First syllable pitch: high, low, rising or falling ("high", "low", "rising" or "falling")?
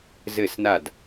falling